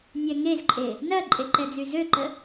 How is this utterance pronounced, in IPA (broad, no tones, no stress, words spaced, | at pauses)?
nʲɛŋezǃʼe | nɐǃʼe ǃɛd͡zyzøǃə